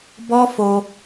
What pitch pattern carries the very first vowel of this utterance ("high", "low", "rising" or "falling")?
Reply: high